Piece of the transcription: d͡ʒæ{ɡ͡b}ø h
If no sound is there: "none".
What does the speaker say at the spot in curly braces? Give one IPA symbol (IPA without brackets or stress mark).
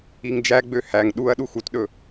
ɡ͡b